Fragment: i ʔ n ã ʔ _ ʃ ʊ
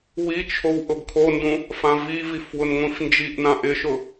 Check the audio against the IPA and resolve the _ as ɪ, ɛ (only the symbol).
ɪ